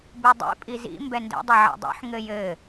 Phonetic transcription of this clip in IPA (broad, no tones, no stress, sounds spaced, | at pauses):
b u dˤ ḭ pʼ i z ḭ m b ɛ n d ɛ̰ dˤ ɘ ʕ ɛ̰ dˤ ṵ ħ ŋ ɘ j ɘ